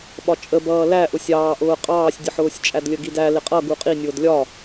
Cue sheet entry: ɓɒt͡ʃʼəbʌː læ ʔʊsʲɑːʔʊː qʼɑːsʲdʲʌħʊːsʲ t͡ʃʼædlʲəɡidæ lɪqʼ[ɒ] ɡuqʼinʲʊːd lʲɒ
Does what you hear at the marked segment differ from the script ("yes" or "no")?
yes